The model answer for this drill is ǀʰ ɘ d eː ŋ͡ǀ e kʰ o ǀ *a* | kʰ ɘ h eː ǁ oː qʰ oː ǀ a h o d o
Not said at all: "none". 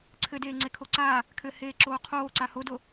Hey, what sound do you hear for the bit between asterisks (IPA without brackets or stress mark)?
a